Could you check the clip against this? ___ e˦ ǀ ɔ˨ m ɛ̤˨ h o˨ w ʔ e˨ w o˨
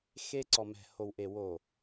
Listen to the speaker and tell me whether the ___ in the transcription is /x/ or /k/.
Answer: x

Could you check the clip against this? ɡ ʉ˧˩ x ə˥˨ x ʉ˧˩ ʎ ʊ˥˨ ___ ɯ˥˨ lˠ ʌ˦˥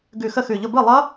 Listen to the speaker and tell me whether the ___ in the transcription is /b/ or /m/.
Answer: b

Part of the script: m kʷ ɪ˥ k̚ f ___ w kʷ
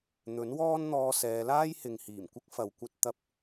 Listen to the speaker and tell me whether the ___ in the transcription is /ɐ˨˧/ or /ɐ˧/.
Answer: ɐ˨˧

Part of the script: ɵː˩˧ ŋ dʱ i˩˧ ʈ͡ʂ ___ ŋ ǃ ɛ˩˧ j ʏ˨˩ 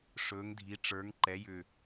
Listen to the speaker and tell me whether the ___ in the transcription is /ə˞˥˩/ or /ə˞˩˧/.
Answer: ə˞˩˧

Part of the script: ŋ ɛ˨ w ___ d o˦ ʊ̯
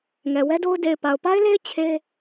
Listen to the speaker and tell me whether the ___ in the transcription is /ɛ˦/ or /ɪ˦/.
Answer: ɛ˦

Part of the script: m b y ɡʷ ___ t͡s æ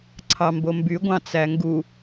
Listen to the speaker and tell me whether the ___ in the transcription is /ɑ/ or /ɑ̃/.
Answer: ɑ̃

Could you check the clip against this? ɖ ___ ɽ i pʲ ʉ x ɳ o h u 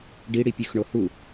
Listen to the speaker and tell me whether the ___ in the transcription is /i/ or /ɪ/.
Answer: i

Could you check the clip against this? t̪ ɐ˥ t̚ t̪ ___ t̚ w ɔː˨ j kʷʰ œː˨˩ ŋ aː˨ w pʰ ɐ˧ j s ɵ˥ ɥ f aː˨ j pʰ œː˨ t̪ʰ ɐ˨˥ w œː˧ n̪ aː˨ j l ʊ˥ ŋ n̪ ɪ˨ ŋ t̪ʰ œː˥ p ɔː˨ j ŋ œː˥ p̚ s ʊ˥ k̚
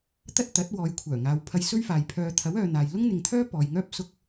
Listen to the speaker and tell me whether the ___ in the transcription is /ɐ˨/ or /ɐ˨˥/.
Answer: ɐ˨˥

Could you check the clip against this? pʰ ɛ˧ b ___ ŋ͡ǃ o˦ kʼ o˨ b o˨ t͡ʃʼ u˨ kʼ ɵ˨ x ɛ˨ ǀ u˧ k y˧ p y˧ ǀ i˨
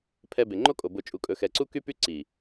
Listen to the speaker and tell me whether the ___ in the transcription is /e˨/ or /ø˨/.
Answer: e˨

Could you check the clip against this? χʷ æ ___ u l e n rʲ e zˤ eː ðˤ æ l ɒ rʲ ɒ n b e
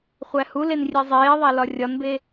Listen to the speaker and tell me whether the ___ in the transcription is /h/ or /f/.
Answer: h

